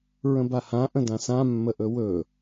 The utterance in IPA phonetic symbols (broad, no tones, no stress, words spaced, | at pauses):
ɹə̃bahãʔə̃ dãsã mːəʔɵwɵ